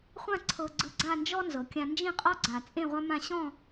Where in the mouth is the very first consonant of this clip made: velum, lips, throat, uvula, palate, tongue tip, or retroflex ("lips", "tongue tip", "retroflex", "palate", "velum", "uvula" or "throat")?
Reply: uvula